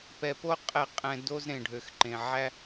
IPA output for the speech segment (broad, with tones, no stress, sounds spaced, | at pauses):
p ɛ˨ p o˦ qʼ ɛ˦˨ qʼ ɛ̃˧ d o˦ z ɾ ẽ˨ ɖʱ ø˨ x ǃ ẽ˨ ʕ æ˦